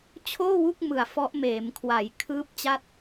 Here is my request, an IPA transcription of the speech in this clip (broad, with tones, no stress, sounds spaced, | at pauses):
t͡ɕʰ oː˥˩ w u˥˩ k̚ m ɯ˨˩ a̯ f ɔ˦˥ ʔ m eː˩˦ m kʰ w a˩˦ j kʰ ɯː˦˥ p̚ t͡ɕ a˦˥ t̚